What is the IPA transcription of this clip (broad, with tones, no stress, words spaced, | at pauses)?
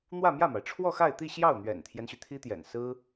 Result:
n̪wä˥˧mjä˥˩ma˩ɪ̯ ʈ͡ʂʰwɔ˥˧xa˥˧ɪ̯t̪i˥˧ ɕjɑ˥˩ʊ̯n̪ɥɛ̰˨˩nt̪ʰjɛ˦nɕy˩ t̪ʰi˥t̪jɛ̰˨˩n sɹ̩˥